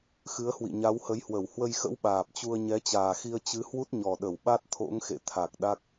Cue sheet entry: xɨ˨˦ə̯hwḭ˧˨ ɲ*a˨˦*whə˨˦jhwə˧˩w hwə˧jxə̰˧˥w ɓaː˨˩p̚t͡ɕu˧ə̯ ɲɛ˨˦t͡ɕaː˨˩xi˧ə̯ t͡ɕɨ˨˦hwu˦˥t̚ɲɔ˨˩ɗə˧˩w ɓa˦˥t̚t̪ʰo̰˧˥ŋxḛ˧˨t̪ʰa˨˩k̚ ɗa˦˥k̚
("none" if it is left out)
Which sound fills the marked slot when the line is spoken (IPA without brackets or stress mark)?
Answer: a˨˦